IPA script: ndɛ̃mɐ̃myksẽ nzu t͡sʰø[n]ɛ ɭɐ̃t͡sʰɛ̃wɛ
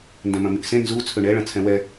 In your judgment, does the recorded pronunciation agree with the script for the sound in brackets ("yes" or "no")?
no